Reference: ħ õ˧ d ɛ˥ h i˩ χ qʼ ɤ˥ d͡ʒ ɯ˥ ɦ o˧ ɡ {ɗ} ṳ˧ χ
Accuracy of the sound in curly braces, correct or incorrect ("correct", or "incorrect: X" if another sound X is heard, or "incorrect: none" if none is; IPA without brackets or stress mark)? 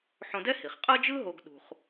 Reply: correct